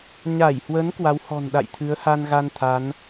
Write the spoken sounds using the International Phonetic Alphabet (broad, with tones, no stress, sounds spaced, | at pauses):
ɲ a˧˩ j h w ə˨˦ n k w a˨˦ w h ɔ̤˨˩ n ɗ a̰˧˨ j t̪ʰ ɨ˨˦ ə̯ h a˧ n ɣ a˧ n t̪ʰ a˨˦ n